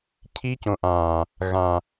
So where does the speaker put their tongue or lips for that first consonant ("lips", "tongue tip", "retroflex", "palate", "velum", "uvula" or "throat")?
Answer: palate